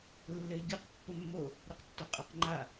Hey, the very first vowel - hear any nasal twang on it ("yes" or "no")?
no